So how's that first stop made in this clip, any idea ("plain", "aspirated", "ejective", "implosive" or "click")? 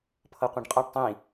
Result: aspirated